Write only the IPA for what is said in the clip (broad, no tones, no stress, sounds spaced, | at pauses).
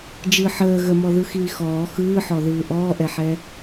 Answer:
d͡ʒ ɯ ħ əː ɣ ə m ɔ ð ɯ x iː x ɔː x ɯː ħ ɔ ð ɯː ʔ ɔː ʔ ɛ ħ ɛ